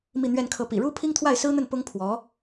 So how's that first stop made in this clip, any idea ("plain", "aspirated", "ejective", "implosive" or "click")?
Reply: aspirated